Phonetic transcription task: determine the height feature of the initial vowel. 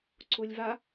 high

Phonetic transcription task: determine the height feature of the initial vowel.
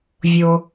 mid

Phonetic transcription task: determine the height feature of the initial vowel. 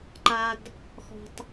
low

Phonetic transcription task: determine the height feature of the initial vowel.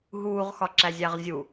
high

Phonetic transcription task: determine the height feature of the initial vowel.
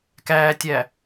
low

